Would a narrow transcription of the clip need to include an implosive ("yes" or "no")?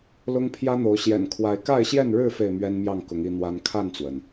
no